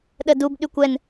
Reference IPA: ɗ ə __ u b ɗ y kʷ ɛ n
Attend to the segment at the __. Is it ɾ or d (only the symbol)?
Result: d